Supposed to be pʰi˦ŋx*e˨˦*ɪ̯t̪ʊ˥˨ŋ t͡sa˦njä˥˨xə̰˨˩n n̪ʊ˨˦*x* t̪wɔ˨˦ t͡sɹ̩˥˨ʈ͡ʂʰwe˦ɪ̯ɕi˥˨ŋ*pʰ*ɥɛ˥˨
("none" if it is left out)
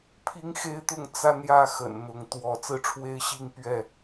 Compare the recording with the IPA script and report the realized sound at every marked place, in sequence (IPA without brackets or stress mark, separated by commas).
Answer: e˦, ŋ, p